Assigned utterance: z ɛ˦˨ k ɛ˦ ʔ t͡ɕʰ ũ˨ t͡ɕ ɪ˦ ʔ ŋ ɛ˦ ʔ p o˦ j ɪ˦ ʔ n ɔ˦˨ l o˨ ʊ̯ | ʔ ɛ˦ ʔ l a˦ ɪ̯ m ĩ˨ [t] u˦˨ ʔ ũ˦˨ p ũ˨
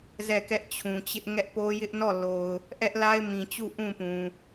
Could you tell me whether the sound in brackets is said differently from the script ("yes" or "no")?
yes